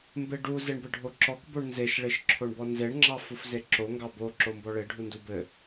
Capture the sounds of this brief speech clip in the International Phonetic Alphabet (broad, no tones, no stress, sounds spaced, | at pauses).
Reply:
m b e ɖ u z e ɳ b ɘ ɖʱ o ǁ ɔ k b o ɳ n z e ʃ ɭ e ʃ ǁʰ o ɳ b ɔ n z e ɳ ŋ͡ǁ ɑ f u f z e ǁ o ŋ ɡ ɑ b o ǁ o m b ɔ ɭ e ɖʱ u n d u b ɘ